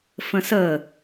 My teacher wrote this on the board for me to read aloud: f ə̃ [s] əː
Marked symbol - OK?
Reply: yes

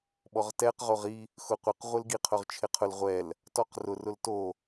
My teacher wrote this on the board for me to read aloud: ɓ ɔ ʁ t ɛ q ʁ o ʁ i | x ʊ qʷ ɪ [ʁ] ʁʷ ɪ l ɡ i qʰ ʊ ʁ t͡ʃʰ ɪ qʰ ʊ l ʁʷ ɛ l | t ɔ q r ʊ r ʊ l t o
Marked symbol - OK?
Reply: no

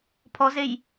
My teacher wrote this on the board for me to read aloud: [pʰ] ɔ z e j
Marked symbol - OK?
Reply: yes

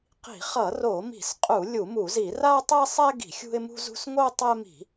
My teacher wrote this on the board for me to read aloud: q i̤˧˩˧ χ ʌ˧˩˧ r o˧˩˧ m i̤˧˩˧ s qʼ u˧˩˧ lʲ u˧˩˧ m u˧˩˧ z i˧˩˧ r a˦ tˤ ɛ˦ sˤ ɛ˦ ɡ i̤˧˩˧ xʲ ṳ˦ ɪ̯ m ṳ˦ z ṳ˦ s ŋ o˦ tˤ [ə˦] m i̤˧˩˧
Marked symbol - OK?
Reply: no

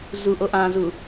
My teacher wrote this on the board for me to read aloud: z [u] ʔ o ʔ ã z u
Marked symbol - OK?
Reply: yes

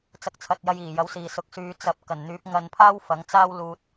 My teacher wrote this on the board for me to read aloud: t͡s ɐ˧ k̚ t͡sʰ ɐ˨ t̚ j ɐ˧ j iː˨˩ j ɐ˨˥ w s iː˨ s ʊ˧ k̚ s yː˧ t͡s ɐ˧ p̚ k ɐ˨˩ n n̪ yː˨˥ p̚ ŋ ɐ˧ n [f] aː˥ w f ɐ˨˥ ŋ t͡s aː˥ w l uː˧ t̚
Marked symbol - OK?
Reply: no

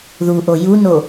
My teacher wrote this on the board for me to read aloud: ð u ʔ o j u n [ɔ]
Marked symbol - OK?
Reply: no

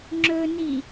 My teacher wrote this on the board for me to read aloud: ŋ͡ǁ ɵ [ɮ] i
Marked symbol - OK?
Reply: no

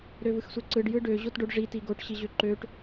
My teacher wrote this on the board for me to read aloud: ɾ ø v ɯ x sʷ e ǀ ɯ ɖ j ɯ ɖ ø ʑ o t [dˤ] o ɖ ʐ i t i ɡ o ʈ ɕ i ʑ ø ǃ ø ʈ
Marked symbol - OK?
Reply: no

